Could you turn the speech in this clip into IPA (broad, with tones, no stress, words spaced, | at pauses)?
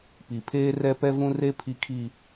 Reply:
pi˨pʰeː˦rɛ˦ pɛ˦vũ˦re˦ pʰi˦kʰi˦